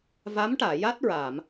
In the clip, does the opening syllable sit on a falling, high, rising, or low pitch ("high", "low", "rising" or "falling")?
rising